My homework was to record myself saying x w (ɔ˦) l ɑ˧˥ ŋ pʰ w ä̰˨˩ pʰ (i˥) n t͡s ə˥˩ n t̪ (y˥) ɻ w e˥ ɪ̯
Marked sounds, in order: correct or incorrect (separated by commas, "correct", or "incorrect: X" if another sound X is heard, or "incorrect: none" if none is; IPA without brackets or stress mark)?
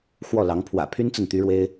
incorrect: ɔ˥˩, incorrect: y˥, correct